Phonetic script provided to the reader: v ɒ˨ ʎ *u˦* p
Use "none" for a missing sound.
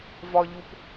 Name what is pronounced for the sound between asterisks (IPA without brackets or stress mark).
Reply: u˨